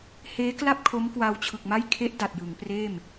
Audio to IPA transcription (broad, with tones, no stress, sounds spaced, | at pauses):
h eː˦˥ k l a˥˩ p̚ kʰ o˦˥ m k w a˧ w t͡ɕʰ ɯ˨˩ k̚ m a˥˩ j kʰ e˦˥ ʔ d a˨˩ t̚ j ɯ˩˦ ŋ p r eː˥˩ m